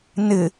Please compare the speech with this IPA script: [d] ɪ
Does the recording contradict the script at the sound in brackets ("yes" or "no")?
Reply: yes